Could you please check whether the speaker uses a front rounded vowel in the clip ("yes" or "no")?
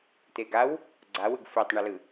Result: no